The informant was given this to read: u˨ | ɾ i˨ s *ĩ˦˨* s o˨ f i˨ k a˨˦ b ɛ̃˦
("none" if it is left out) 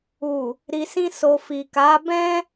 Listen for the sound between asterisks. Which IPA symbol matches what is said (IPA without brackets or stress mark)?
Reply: ĩ˧